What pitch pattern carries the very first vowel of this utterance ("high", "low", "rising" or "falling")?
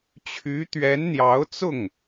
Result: rising